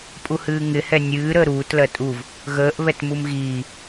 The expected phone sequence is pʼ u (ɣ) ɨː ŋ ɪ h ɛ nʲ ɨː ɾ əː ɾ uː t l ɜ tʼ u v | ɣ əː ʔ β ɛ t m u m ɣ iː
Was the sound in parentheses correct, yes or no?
no